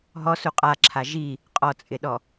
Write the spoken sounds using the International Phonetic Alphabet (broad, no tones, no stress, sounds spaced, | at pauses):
ɦ ɔ s u qʼ a ǁʰ a ʒ i | qʼ ɔ t͡sʼ ɪ ɗ ɔ